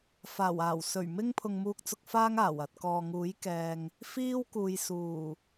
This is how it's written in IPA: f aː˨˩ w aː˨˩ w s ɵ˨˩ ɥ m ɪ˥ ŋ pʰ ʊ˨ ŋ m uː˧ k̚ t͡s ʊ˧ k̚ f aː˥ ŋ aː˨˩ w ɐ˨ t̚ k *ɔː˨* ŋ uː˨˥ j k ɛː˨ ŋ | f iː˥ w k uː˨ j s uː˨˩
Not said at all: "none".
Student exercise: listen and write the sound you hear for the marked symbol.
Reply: ɔː˨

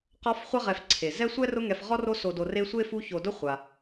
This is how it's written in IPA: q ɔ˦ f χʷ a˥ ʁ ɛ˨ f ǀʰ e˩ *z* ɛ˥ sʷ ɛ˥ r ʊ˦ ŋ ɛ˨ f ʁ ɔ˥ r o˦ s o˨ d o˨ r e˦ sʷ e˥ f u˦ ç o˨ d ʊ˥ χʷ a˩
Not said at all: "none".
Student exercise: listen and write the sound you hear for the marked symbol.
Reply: z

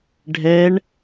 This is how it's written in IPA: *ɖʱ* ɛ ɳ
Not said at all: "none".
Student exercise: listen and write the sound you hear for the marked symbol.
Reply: ɖʱ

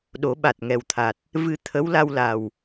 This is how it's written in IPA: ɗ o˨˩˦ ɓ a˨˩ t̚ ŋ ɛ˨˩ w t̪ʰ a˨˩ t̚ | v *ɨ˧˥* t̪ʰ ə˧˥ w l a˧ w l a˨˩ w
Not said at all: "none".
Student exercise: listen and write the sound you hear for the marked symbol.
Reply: ɨ˧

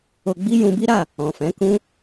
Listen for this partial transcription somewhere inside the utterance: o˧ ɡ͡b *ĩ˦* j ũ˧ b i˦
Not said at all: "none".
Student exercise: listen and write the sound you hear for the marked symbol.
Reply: i˦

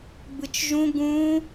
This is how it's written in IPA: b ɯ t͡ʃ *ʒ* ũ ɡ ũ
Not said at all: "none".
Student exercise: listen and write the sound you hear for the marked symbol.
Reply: ʒ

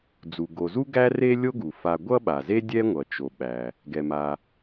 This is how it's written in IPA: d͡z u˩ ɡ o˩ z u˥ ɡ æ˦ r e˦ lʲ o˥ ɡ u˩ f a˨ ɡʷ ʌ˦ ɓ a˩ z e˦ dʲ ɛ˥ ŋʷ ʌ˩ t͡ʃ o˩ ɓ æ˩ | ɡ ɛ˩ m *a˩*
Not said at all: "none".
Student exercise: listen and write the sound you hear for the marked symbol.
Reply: a˩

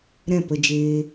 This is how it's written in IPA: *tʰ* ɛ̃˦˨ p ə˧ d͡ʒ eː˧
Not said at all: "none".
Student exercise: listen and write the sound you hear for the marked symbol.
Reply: ɾ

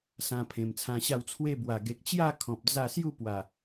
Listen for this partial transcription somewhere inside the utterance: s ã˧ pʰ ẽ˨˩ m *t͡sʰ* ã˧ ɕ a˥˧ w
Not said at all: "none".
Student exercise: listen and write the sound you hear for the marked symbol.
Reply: t͡sʰ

